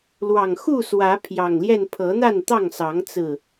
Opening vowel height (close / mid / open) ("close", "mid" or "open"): open